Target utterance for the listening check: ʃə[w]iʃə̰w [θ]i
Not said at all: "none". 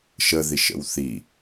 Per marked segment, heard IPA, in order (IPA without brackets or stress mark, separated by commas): ð, θ